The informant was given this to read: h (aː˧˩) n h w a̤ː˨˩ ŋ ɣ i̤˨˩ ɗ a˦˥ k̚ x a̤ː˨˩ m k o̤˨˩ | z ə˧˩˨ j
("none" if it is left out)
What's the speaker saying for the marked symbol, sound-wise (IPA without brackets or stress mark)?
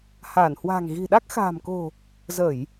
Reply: aː˧˩